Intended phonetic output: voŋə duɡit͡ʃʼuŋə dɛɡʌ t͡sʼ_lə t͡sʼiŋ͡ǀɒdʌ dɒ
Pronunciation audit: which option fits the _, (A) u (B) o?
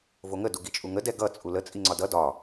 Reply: A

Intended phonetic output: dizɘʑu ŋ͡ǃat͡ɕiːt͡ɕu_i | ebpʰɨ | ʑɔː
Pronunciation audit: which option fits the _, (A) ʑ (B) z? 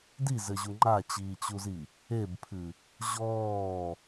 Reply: B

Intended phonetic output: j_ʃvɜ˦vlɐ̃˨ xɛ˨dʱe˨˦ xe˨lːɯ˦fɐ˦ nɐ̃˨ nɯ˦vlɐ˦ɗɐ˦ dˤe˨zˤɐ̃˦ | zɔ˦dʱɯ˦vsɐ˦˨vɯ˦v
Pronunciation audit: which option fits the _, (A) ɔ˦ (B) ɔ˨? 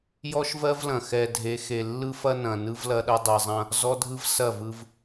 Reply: A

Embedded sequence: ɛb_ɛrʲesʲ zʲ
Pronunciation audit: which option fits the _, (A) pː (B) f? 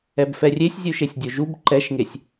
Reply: B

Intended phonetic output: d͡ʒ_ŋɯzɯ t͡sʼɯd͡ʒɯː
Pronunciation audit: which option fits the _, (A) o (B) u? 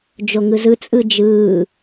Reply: A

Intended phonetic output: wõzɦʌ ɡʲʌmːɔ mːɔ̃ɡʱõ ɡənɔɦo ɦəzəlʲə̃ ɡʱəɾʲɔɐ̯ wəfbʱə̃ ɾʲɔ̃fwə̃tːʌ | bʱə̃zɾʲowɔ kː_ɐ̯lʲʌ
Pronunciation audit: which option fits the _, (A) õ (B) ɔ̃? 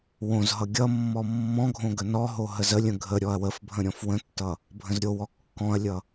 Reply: B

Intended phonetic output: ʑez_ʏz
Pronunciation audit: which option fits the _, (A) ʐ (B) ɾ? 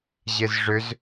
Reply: A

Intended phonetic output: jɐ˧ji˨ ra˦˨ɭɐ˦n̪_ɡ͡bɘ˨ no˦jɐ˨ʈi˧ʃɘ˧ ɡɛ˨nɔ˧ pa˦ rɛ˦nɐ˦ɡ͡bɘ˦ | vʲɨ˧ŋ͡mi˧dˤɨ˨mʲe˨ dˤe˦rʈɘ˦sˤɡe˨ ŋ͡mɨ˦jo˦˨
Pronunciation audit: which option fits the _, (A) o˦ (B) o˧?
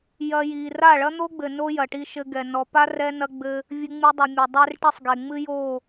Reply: A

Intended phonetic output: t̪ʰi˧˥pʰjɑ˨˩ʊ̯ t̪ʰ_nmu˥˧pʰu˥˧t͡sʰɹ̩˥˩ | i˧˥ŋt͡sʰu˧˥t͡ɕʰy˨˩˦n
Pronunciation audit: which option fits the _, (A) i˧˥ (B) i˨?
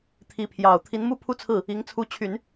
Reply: A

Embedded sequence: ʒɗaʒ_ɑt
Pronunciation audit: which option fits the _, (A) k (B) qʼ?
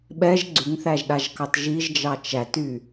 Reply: A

